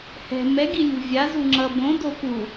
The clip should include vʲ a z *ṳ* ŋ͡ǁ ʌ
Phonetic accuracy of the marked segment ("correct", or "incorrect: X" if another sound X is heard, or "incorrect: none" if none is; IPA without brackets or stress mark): incorrect: u